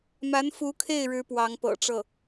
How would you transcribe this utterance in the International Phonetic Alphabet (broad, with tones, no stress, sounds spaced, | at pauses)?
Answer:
m a˧˥ n f u˧˥ kʰ e˥˩ ɪ̯ ɻ ɻ̩˧˥ p w ɑ˧˥ ŋ p ɤ̰˨˩ ʈ͡ʂ ɤ˥˩